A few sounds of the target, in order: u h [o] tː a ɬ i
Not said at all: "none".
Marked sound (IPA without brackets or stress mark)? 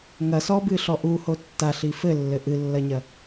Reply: o